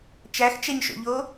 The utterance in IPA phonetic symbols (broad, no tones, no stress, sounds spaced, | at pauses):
t͡ʃ æ x t͡ʃ ɛ ɲ ʃ o̰ ʎ o